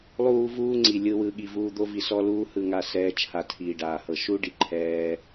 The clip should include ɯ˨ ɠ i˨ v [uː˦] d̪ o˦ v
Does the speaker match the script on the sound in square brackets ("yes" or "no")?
no